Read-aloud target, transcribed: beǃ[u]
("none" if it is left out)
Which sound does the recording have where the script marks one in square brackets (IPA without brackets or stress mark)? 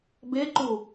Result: u